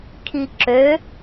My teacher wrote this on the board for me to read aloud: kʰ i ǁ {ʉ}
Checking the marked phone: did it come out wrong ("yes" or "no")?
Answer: yes